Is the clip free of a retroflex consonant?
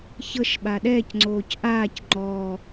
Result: yes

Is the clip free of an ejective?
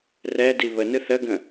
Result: yes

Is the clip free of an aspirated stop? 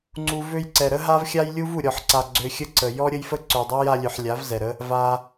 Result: yes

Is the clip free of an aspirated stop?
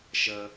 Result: yes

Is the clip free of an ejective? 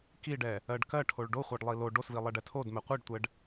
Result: yes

